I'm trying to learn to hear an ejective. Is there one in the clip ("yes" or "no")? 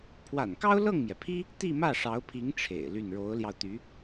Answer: no